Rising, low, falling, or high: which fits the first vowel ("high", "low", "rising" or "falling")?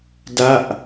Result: falling